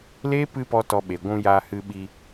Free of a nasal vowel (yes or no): no